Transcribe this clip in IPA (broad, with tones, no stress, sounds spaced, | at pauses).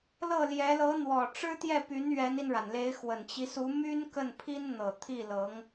l ɤ˥˩ l j ɛ˧˥ l ɤ˧˥ n̪ w ɔ˨˩ ʈ͡ʂ ɻ̩˥ t̪ j ɛ˥˩ p y˧˥ n ɥ ɛ˧˥ n i˧ n ɻ a˩ n l e˧˥ ɪ̯ x w ə˨˩ n t͡ɕ i˦ s u˧˥ m y˥ n k ə˥˩ n pʰ i˥ n n̪ ɤ˨˩ t̪ʰ i˥˩ l ɤ˧˥ ŋ